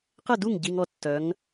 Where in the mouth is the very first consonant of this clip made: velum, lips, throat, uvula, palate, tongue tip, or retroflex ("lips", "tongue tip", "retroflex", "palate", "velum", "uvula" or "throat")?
uvula